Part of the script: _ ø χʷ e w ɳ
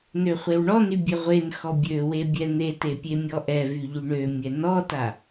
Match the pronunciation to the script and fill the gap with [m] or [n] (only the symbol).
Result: n